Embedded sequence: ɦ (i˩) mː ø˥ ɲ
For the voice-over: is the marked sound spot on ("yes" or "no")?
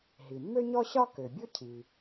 yes